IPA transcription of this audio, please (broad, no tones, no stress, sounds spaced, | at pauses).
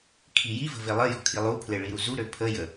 kʰ i j i v ə̤ v e lˠ ə j ɔ̤ kʰ i lˠ u pʰ l e ɭ i ɾ u z u ɾ ø pʰ ə j ə